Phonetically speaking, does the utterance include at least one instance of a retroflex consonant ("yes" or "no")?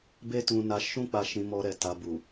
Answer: no